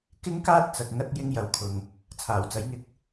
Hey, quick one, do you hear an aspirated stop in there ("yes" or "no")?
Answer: yes